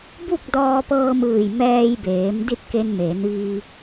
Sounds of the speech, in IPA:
b u˥˨ k̚ d ɔː˧ p ɤː˧ m ɯː˧˩ j m ɛː˧ j b eː˩˧ m d i˥˨ t̚ k e˧ n m eː˩˧ n ʋ iː˧

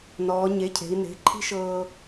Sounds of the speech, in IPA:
n ɔː˩˧ ɲ e˩˧˩ cʰ e̤˩˧ i̯ n e̤˩˧˩ ǃʰ i̤˥ ʃ ɤː˧

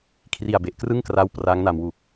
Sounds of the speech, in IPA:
kʰ r i˨˩ a̯ b e˨˩ ʔ k r ɯ˥˩ ŋ k r a˦˥ w p r a˦˥ ŋ n a˧ m w u˨˩ k̚

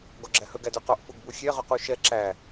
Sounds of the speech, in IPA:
ɡ ɔ ɡ͡ǁ æ h ɵ ɡ æ d ʉ q ɔ ʔ f u ɡ b u xʲ ɛ ʁ ɵ q u ʃ ɛ ǁ æ

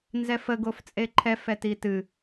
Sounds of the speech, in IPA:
n z ɛ f ə ɡ o f t͡sʼ e ǃʰ ɛ f ɛ t i t ɨ

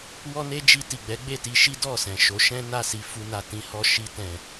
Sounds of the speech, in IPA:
w ɔ˦ n e˦ d͡ʒ i˧ t i˨ ɡ͡b ɛ˨˦ ɡ͡b e˦˨ t i˧ ʃ i˦ d ɔ˦˨ s ɛ̃˨ ʃ o˨˦ ʃ ɛ̃˦ n a˦˨ s i˧ f u˧ n a˨ t ĩ˧ h ɔ˧ ʃ i˧ t ɛ̃˨

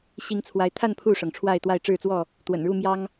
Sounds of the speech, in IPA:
ɕ i˨˦ ŋ t͡sʰ w a˨˦ ɪ̯ t̪ʰ a˥˨ n pʰ u˥˨ ʂ ɤ˩ ŋ ʈ͡ʂʰ w a˥˨ ɪ̯ t̪ w a˥˨ ɪ̯ ʈ͡ʂ ɻ̩˥˨ t͡s w ɔ˥˨ | t̪ w ə̰˨˩ n ɻ u˥˨ m j ɑ˦ ŋ

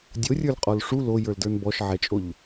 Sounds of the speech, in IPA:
dʲ o rʲ ə˞ l qʼ ɔ l ʂ u l o j ə˞ l d ə˞ n b ɔ ʃ ʕ ɛ t͡ʃʼ o ʎ

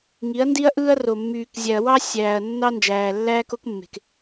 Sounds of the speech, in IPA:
ŋ i˨˦ ɐ̯ n d i˦ ɐ̯ ʔ ɯː˦ ɐ̯ r o˨ mː yː˨ k zʲ æ˨ ɐ̯ w ɑ˦ sʲ æː˨ ɐ̯ nː ɑ˦ n d͡ʒ æː˨ lː æː˦ k o˦ k mː e̤˨ k

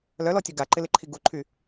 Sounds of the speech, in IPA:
l œ l ɔ tʲ u ɡ a ǃ ɪ l ɪ ǃʰ i ɡ u ǃʰ y

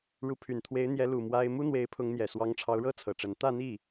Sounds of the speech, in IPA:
ɻ u˧˥ pʰ y˨˩ n t̪ʰ w e˧˥ ɪ̯ n̪ j ɛ˧˥ l u˨˩ m w a˥ ɪ̯ m u˥ n̪ w e˧˥ ɪ̯ pʰ ʊ˧˥ ŋ n̪ j ɛ˨˩ s w ɑ˧˥ ŋ ʈ͡ʂʰ ɑ˧˥ ʊ̯ ɻ ɤ˥ t͡sʰ ɤ˨˩ ʈ͡ʂ ə˧˥ n t̪ ä˥˧ n̪ i˥˩

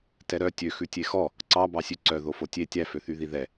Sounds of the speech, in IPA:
t ɛ ɾ œ tʲ ø x ʉ tʲ e x ɔ | ǀ ɑ b ɑ sʲ ʉ ǀ œ ð o f o tʲ e tʲ æ f ø θ y ð i ð ɛ

